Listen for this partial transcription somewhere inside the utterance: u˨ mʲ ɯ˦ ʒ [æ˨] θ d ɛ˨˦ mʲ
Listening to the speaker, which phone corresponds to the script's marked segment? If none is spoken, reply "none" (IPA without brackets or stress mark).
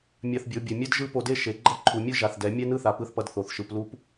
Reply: a˨